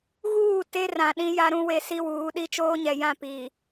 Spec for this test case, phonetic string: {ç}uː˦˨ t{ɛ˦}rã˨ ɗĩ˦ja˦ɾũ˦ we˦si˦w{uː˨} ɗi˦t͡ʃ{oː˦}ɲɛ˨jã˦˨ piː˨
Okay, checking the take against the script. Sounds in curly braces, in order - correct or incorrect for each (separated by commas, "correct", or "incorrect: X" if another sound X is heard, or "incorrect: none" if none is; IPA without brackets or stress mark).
incorrect: ɣ, incorrect: e˦, incorrect: uː˨˦, correct